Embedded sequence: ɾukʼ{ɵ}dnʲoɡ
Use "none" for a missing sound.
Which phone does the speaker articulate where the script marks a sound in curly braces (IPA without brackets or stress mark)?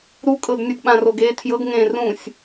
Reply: ɤ